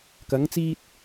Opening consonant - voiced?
no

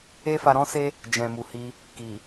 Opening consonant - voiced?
no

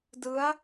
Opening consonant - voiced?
yes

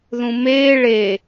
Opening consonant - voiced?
yes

